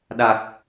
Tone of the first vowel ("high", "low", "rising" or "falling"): low